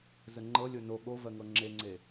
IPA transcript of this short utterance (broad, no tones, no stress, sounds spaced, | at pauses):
z ə ŋ͡ǃ ɤ lʲ o n o ɠ o v ɜ ŋ ɤ ŋ͡ǁ e ŋ͡ǀ e